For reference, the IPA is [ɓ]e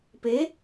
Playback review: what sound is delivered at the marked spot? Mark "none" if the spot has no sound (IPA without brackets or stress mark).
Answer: p